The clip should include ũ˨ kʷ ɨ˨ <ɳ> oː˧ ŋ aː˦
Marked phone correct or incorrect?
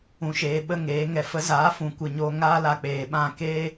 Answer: incorrect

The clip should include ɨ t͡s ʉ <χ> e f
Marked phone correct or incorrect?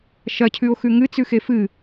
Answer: incorrect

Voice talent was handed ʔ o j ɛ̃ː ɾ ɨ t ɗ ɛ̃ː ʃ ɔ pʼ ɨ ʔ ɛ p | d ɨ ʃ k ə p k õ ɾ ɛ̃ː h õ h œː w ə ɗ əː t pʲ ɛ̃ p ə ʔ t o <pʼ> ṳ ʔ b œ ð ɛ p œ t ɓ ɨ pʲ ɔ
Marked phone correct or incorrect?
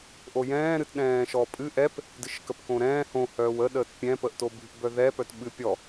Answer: incorrect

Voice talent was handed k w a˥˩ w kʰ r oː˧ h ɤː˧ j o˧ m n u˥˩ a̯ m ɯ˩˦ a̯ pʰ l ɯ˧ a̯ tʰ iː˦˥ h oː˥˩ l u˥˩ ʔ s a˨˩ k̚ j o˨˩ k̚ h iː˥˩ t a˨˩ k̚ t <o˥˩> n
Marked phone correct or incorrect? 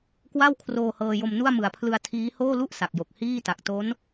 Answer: incorrect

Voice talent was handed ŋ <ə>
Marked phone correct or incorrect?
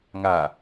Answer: incorrect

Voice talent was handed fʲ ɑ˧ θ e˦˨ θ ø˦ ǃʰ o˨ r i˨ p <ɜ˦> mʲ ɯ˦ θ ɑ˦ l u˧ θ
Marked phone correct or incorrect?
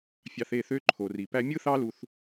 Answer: incorrect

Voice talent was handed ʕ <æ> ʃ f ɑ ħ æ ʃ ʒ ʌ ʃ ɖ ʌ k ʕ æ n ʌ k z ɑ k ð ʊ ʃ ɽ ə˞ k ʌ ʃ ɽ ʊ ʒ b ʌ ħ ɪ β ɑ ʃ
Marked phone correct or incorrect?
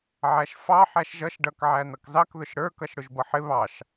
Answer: correct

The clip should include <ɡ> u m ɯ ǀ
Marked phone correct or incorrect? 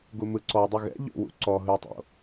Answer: correct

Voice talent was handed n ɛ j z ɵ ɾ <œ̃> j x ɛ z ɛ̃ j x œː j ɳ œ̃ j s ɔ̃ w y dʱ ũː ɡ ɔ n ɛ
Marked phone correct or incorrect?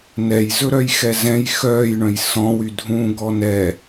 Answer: incorrect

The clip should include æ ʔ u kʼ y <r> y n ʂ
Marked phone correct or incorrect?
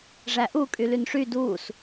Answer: incorrect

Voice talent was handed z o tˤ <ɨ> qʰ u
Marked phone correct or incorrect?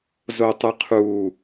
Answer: correct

